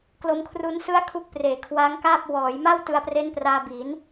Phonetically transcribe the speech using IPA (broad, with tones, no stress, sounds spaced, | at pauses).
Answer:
k l o˧ m kʰ r u˦˥ n s ɯ˥˩ a̯ kʰ u˦˥ k̚ p r eː˨˩ kʰ w a˦˥ ŋ k aː˥˩ p̚ w ɔː˩˦ j m a˥˩ w t ɯ˧ a̯ p r e˦˥ n p r aː˧ b i˩˦ n